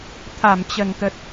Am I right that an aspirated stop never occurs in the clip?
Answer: no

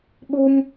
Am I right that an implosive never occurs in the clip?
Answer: no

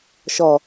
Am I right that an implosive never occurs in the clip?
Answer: yes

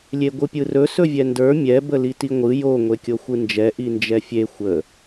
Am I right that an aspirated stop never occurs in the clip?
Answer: yes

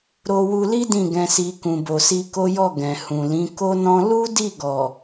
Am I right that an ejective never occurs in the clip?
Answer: yes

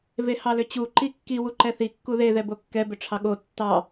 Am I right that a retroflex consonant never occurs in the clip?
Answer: no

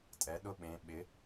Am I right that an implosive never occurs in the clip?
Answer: no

